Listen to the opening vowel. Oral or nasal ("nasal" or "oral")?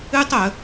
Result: oral